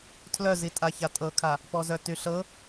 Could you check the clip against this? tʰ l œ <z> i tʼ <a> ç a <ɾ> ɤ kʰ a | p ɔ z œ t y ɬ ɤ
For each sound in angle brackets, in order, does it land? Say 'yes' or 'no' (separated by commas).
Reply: yes, yes, no